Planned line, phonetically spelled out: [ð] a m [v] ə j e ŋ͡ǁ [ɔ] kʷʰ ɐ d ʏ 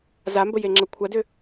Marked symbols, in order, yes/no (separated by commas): no, no, no